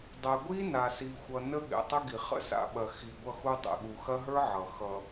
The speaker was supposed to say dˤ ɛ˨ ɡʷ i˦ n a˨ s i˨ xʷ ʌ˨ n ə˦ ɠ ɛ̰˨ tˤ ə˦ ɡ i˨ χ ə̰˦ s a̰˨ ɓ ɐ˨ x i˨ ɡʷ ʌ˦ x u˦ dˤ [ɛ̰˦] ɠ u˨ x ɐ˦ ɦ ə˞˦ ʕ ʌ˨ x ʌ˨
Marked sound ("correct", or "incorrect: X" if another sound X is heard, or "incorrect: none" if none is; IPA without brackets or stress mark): incorrect: ɛ̰˨